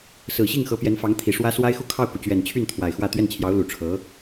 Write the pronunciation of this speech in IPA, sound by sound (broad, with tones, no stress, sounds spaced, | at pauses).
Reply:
s ɹ̩˨˩ ɕ i˥˩ ŋ x ɤ˧˥ p j ɛ˧˥ n f ɑ˧˥ ŋ t̪ʰ i˨˩ ʂ w ä˥ s w a˥ ɪ̯ x u˥˧ kʰ ɑ˥˩ ʊ̯ k u˩ t͡ɕ ɥ ɛ˨˩ n t͡ɕʰ y˥˩ n t̪ʰ w a˨˩ ɪ̯ x w ä˥˧ t̪ ɥ ɛ˥˩ n t͡ɕʰ j ɑ˧˥ ʊ̯ l u˨˩ ʈ͡ʂʰ ɤ˧˥